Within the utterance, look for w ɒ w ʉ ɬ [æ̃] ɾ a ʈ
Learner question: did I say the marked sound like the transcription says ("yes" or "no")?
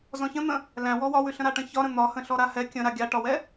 no